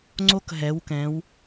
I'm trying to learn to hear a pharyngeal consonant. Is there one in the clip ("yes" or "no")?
no